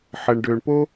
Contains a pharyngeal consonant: yes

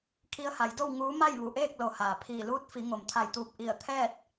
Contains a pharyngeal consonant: no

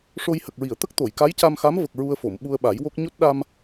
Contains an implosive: yes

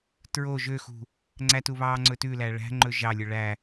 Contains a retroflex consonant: yes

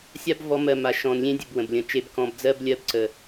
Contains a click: yes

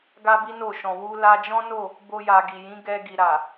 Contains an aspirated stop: no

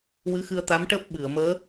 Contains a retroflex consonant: yes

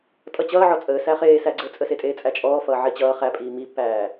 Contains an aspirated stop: no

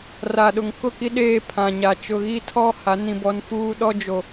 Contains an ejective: no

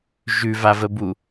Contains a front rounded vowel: no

